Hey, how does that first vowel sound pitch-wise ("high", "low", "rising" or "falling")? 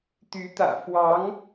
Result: rising